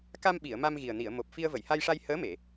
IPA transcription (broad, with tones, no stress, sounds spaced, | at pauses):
k a˧ m ɓ i˨˩˨ ə̯ m a˧ m ɣ i˨˩ ə̯ n i˨˩˨ ə̯ m o˨˩ p̚ f i˧ ə̯ v ə˨˩˨ j h a˧ j ʂ a˧ j h əː˧˥ m e˨˩˨